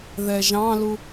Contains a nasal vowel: yes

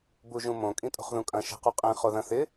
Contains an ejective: yes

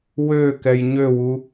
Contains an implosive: no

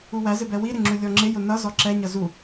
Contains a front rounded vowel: no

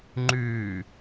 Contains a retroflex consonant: no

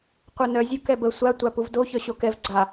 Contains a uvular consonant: yes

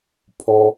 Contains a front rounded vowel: no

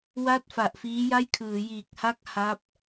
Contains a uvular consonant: no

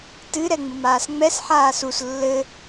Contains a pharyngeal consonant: yes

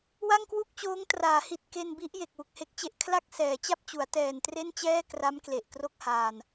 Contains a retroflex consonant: no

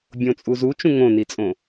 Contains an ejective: yes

